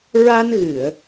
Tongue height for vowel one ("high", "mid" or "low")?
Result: low